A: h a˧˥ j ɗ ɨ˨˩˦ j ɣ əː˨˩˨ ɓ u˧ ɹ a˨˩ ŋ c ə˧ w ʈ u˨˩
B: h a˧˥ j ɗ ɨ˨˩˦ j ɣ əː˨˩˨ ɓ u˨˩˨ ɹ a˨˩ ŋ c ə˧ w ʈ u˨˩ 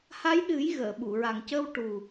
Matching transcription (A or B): B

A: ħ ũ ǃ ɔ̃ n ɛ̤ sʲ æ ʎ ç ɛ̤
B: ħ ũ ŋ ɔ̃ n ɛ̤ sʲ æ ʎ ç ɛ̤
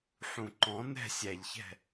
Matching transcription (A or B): A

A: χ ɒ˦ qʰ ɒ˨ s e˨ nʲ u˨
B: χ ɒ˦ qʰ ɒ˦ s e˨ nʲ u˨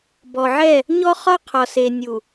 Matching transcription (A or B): A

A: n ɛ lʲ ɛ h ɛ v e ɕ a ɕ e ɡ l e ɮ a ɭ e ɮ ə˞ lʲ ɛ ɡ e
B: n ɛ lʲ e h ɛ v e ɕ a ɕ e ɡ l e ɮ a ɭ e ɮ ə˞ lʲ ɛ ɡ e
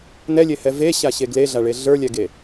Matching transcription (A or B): B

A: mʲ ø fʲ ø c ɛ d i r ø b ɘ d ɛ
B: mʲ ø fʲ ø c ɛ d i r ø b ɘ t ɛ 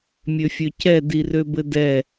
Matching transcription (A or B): A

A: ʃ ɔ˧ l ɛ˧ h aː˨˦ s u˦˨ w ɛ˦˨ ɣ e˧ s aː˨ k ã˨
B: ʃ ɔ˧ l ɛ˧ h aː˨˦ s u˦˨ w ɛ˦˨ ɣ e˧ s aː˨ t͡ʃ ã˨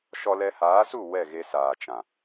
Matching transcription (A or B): B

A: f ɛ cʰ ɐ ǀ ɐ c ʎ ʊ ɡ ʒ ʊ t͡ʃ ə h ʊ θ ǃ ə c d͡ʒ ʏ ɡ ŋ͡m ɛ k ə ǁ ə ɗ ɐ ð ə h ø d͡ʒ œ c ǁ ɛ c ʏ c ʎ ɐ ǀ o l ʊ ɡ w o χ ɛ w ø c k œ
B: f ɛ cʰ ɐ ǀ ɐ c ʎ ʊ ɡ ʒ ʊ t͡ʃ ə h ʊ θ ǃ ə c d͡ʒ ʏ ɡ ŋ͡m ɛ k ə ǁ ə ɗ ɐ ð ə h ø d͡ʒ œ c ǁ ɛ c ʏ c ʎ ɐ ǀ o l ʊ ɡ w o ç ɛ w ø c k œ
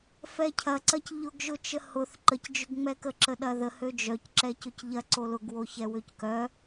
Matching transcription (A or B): B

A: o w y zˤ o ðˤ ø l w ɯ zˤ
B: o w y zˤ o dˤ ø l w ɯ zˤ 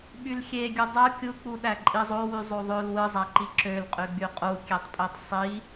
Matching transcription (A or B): A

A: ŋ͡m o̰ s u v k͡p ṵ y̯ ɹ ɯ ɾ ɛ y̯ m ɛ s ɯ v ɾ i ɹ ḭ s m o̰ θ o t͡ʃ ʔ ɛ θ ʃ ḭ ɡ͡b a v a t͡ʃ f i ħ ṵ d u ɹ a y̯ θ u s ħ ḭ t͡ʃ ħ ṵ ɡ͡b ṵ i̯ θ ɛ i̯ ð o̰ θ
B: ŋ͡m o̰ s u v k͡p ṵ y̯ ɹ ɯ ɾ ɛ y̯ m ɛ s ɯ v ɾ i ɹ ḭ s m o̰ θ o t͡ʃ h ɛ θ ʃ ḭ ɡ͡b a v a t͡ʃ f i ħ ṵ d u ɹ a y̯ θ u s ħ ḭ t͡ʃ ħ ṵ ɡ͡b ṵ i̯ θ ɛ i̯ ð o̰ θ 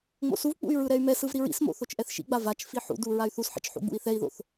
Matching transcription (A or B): A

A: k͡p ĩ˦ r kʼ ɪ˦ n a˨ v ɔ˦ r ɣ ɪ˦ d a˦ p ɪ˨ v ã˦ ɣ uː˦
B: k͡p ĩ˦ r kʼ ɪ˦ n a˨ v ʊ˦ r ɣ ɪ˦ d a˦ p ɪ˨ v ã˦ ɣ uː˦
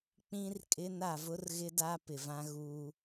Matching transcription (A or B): B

